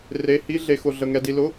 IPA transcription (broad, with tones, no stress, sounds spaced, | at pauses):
r e˧˥˧ h i˥ ɮ e˧ x ʊ˧ ɮ ə˧ ŋ ɛ˧ d i˧ l ʊ˧˥˧